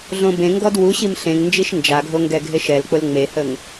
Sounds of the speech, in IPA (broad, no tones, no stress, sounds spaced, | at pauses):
ɮ õ b ẽ ŋ ɡ ɔ d w u ɕ i m ɬ ẽ ŋ n d͡ʒ i ʃ n d͡ʒ a ɡʱ o ŋ ɡ ɛ ɡʱ e ʃ ɛ l k͡p ʊ l ŋ͡m e h ə ŋ